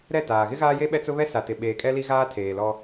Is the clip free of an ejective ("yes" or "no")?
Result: no